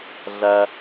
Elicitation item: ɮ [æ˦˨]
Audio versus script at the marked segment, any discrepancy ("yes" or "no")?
yes